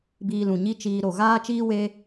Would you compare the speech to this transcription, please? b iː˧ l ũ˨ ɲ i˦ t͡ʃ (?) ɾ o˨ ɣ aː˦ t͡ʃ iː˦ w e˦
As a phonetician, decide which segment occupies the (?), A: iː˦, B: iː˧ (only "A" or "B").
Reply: B